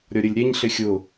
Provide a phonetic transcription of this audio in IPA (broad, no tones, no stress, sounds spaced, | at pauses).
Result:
ɾʲ ɔ ɾʲ ə lʲ ɾʲ ɛ ɲ ɬ ɪ xʲ ʊ